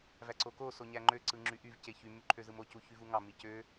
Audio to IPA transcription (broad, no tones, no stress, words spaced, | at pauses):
væǀoko soɲæŋ͡ǃø ǀɯŋ͡ǁyʔyv ceçy myǃʰøzɯmo cuçyvuŋɑ micø